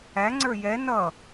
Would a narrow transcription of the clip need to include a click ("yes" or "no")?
yes